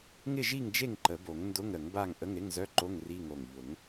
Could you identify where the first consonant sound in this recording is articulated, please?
velar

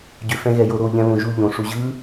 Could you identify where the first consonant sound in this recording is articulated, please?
palatal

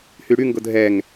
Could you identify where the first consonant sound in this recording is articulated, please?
glottal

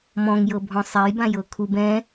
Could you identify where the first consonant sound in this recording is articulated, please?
labial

